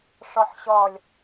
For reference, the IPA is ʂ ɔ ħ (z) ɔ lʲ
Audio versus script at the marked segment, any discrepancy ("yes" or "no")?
yes